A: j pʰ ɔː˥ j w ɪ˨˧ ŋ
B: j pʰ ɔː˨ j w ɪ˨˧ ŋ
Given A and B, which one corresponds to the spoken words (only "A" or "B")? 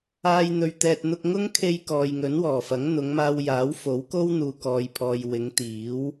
B